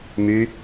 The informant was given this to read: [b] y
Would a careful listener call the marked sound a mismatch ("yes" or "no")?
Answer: yes